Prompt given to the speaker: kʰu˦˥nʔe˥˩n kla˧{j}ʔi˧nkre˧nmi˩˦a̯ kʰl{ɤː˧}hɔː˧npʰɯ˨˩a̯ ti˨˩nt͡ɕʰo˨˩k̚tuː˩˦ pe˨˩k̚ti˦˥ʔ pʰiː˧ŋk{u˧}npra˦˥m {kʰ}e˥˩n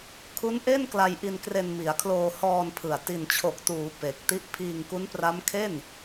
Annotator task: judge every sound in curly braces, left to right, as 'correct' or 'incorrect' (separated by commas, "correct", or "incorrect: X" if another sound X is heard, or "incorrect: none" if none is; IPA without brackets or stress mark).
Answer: correct, incorrect: oː˧, incorrect: u˦˥, correct